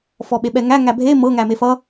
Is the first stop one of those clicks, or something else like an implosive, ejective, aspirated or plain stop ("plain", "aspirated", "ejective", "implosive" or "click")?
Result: implosive